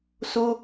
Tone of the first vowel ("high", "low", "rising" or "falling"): high